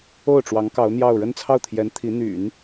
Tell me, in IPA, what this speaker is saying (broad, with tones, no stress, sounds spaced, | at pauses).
o˥˩ ʊ̯ ʈ͡ʂ w ɑ˧˥ ŋ k ɑ˧˥ ʊ̯ n̪ j ɑ˥˧ ʊ̯ ɻ ə˥˧ n t͡sʰ ɑ˥˩ ʊ̯ t̪ʰ j ɛ˧˥ n t̪ʰ i˧˥ n̪ y̰˨˩˦ n